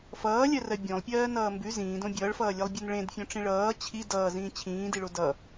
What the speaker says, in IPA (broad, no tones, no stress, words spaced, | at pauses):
fʌːlʲɜrɜ bʲõlˠpʲɜːnʌː mbʉ zĩːdõ bʲʌːɭfʌːlʲɜlˠbʲon ɭẽdfʲõʈ͡ʂĩ ɭʌː t͡ɕʰi dʌːzĩː t͡ɕʰĩːdiɭo dʌ